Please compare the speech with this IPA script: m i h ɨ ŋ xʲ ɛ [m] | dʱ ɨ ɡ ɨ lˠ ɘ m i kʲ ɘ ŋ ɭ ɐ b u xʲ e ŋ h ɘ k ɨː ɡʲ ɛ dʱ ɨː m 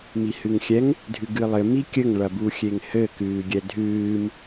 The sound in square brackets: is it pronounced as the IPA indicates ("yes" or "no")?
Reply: no